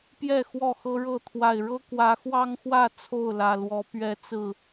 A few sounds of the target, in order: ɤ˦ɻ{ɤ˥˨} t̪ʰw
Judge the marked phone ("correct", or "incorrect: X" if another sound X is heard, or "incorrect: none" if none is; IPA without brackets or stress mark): correct